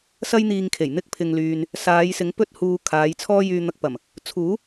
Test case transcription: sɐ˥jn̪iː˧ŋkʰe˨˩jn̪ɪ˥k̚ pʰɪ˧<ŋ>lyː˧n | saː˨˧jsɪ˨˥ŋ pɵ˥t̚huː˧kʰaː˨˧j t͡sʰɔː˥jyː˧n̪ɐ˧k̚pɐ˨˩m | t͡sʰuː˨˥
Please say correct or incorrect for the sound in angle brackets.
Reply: correct